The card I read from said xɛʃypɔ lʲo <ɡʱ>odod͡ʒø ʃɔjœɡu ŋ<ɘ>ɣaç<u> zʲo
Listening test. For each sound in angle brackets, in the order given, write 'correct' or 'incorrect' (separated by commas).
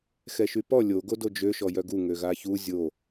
incorrect, incorrect, correct